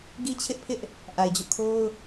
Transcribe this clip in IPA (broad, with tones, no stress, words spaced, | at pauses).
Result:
ɡi˦t͡ɕʰɪ˦ʔpʰɪ˦ʔ | ʔa˨ɪ̯d͡ʑo̰˦˨kʰo˦ʊ̯